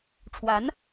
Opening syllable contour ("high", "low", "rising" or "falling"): rising